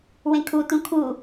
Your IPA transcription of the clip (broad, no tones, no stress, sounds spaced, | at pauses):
w ẽ kʰ u t ũ kʰ u